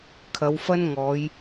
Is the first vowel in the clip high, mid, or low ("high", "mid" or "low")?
low